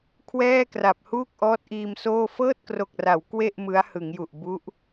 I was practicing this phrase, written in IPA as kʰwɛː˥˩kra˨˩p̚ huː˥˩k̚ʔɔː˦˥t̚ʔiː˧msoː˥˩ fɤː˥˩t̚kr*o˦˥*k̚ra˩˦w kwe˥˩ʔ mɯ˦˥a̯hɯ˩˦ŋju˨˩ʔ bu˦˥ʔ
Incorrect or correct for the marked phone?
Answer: incorrect: o˨˩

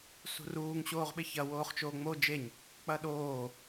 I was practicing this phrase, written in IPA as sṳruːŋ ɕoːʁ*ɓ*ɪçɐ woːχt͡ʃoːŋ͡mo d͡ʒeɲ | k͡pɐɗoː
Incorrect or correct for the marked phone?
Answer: correct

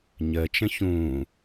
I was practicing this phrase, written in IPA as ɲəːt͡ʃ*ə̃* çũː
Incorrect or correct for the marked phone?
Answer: correct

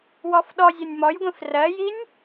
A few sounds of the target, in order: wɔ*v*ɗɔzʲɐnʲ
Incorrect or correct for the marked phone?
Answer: incorrect: f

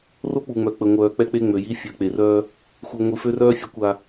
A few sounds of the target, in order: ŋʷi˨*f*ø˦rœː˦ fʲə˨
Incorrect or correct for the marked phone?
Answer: correct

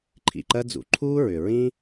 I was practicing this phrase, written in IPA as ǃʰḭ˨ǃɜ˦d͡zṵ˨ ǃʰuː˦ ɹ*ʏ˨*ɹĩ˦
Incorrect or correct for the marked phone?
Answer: correct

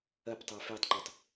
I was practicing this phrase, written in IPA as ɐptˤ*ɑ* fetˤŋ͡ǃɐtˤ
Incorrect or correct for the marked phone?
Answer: correct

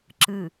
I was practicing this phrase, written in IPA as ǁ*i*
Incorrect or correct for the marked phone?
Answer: incorrect: ɨ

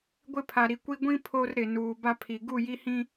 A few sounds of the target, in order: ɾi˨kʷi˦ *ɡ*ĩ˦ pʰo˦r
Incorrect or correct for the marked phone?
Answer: incorrect: ɡʷ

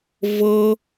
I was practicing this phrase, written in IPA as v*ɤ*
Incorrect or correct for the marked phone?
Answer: correct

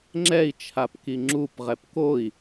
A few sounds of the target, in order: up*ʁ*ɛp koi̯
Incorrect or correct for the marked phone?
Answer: correct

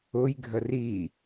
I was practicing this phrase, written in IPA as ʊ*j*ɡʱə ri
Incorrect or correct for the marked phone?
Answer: correct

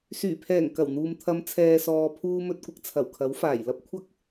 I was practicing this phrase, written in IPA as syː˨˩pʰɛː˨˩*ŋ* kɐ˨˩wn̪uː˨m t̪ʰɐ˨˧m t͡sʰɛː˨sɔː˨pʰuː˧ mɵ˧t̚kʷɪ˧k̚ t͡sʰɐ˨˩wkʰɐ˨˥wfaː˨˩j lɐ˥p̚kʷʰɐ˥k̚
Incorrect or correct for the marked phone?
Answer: correct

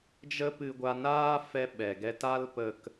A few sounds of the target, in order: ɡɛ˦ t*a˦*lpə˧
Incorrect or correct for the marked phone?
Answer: correct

